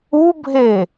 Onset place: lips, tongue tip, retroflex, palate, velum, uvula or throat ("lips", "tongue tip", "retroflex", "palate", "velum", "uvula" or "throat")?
lips